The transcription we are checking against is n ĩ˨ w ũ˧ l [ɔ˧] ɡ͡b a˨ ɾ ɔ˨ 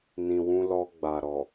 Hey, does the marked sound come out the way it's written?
yes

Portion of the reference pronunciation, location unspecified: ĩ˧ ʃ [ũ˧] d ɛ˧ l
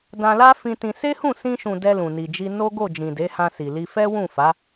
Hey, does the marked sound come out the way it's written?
no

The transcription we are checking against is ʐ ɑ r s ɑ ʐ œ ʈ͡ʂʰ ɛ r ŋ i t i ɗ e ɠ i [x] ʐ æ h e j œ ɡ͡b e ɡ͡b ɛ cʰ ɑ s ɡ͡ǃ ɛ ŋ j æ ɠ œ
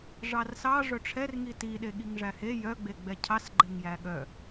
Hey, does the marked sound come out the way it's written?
no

